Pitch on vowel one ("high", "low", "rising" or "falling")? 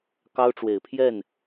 high